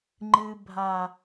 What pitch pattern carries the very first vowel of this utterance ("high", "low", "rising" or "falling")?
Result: low